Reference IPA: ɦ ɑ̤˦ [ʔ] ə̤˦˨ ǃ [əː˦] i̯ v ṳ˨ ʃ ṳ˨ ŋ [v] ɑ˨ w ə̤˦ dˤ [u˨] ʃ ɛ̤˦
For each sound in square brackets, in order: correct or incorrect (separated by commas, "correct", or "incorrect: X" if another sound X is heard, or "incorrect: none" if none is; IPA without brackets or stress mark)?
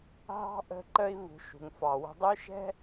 correct, incorrect: ə˦, incorrect: f, incorrect: u˦